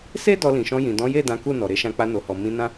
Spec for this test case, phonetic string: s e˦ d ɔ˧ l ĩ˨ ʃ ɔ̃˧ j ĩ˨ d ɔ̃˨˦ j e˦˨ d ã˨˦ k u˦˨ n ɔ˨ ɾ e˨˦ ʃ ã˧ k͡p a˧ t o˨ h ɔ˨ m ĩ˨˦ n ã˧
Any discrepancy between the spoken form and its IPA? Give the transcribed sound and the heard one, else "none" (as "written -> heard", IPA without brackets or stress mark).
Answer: t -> n